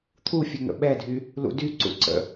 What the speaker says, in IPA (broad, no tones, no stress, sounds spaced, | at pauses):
t̪ʰ u fʲ ə ŋ ə̰ ɓ ɛ dʱ y | l ṵ d y ǀ ṵ ǀ ə̰